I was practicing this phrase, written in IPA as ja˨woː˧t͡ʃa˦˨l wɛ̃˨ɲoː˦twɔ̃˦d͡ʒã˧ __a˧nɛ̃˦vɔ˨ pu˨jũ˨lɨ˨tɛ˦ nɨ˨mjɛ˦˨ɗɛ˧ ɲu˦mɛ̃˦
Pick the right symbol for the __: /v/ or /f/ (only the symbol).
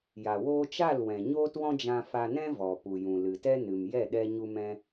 f